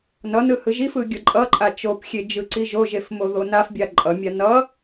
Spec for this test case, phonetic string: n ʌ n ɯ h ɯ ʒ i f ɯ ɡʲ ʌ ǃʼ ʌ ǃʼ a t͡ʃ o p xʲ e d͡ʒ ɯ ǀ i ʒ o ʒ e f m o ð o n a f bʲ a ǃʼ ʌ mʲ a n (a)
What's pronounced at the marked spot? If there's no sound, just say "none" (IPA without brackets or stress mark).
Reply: ʌ